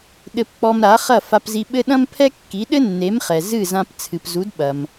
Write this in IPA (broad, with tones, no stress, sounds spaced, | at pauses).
ɗ ɘ˧ p k͡p ɔ˧ m ɾ a˩˥ χ ɐ˥˩ f a˧ p z i˧ ɓ ɘ˥ ɗ ɐ̃˥ m pʰ ɛ˥ kː i˩˥ ɗ ɘ˥ nː e˩˥ m χ ɛ˩ z ɨ˥˩ z ã˧ p t͡sʰ ɨ˩ p z u˩˥ d ɓ ɐ˩ m